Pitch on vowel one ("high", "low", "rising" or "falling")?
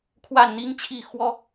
falling